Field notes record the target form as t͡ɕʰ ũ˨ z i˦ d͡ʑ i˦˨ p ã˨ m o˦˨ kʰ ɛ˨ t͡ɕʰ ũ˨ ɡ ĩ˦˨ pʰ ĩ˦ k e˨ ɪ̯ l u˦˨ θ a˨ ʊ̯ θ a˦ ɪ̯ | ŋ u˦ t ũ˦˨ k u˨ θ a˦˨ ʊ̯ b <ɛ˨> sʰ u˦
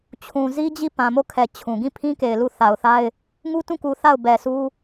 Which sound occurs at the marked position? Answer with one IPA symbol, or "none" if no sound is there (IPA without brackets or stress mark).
ɛ˨